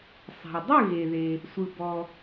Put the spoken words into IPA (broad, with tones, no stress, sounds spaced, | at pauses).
sˤ a̤˩ w dˤ ɯ˥˨ ɣ e˩ ð e˩ | sʷ ɯ˩ b ɔ˩